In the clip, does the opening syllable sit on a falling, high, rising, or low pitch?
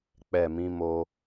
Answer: low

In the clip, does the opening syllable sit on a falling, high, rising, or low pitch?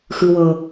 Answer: high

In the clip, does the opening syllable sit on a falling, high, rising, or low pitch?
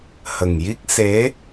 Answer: low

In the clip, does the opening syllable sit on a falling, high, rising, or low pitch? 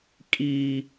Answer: low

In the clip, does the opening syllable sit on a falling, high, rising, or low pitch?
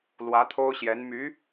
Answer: rising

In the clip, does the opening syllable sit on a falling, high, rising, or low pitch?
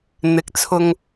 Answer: rising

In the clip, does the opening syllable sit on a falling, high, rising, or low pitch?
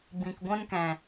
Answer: low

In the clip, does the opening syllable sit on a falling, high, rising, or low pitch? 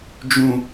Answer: low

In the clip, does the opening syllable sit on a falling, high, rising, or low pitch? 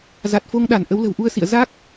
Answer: low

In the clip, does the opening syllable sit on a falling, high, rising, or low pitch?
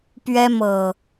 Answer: high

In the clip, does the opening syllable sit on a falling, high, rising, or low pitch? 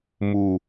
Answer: low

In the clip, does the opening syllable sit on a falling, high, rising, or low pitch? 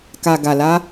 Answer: low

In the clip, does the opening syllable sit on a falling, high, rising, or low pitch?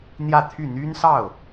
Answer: falling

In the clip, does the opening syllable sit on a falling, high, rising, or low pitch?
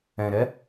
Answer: low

